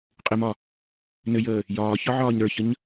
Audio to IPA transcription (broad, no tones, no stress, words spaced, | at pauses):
qʼɪmɒ | nɘjəː | jɒːçɒ ʕɒːɲɾə˞çəɲ